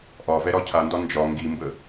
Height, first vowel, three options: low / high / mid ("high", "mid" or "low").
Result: low